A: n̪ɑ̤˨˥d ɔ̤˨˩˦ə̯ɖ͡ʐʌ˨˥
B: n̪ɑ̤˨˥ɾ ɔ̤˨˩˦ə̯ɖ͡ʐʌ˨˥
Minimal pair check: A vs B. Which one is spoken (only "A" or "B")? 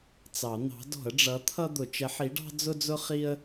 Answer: A